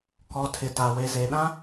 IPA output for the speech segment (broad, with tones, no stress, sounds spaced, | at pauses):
k ɔ˨ tʰ ɪ˨ t a˨ w e˨ z e˨ ɗ ã˦